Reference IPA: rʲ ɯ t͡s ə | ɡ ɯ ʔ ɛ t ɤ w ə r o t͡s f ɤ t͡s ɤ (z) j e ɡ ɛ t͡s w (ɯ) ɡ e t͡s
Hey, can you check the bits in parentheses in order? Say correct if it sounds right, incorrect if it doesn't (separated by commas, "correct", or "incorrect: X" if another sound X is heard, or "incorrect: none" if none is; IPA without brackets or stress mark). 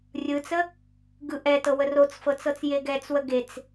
incorrect: t͡s, incorrect: ə